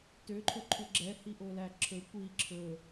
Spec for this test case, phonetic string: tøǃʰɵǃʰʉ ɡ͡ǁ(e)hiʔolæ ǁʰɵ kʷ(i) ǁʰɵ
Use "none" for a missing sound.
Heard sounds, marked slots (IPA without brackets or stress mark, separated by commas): ɛ, i